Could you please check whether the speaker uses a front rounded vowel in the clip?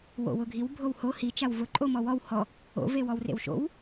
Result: no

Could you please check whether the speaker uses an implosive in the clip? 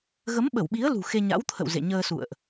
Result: yes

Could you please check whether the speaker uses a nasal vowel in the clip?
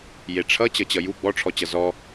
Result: no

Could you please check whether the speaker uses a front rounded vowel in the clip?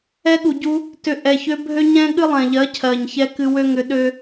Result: yes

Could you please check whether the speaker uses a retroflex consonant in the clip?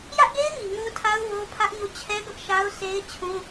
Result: no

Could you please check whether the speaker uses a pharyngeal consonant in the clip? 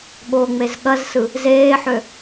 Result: yes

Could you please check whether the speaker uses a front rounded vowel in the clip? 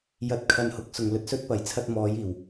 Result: no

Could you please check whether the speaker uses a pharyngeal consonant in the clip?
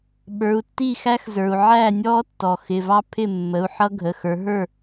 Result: yes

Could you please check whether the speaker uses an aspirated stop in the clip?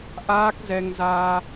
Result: no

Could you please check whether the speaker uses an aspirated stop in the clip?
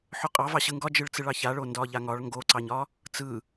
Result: no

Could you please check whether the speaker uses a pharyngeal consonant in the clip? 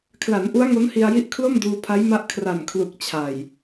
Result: no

